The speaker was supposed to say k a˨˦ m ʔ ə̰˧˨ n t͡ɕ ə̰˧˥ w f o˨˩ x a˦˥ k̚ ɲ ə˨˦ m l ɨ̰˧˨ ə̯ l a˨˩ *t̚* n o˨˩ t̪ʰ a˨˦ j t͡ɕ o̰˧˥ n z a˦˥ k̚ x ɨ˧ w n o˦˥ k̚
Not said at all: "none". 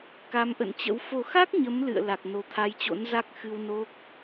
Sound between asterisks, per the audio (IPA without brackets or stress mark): k̚